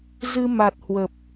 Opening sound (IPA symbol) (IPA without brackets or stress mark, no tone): z